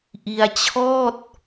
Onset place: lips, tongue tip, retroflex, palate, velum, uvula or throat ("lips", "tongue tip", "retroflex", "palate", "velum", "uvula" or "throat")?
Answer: throat